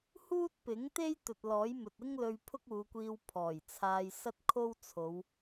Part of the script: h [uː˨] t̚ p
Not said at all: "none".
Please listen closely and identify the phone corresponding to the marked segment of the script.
uː˥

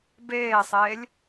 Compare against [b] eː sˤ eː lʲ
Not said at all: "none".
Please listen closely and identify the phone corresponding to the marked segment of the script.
b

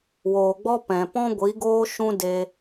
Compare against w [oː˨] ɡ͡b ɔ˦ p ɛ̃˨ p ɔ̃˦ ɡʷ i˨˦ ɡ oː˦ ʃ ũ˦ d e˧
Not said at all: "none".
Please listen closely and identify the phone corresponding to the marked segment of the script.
oː˨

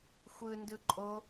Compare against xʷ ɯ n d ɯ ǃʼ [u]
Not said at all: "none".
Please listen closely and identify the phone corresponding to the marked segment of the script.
o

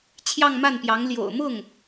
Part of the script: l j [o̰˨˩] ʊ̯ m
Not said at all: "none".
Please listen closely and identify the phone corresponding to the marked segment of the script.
o̰˨˩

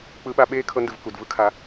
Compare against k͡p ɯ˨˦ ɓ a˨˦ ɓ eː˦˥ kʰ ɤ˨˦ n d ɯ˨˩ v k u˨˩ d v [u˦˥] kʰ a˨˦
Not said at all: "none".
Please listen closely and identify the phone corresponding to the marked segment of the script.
ɯ˦˥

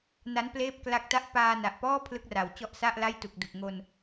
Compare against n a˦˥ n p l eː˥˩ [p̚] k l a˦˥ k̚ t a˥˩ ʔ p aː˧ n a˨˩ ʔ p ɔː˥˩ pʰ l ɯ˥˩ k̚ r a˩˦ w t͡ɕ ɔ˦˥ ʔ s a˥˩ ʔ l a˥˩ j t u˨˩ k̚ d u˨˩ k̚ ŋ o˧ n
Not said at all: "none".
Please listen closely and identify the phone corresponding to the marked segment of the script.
p̚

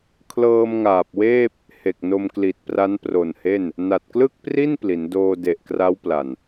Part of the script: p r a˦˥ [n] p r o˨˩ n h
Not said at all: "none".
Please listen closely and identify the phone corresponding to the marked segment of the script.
n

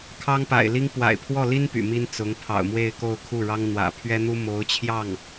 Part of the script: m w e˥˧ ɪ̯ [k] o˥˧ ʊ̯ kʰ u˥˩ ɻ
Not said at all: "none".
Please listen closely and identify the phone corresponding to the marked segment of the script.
k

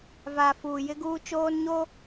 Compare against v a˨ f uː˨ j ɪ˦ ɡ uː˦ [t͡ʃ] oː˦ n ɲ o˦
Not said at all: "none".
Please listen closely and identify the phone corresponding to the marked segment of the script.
t͡ʃ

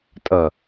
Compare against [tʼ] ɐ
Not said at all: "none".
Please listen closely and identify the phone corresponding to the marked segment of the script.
tʼ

